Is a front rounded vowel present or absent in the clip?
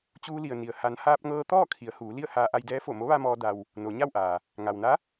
absent